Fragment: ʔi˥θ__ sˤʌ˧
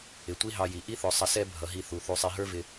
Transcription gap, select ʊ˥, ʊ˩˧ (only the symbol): ʊ˩˧